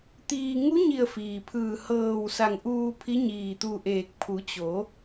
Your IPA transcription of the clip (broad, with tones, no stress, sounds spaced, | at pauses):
t̪ iː˧ ŋ u˧˥ ɲ i˧˩ ə̯ f iː˩ pʰ ɯː˧˩ h ɤː˧˩ w s a˧˩ ŋ ʔ uː˧ pʰ i˧˥ ɲ iː˧˩ t̪ u˧ ʔ eː˧˩ k̚ pʰ u˩˧ t͡ɕ o˩˧